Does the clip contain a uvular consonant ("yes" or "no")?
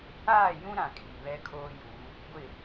no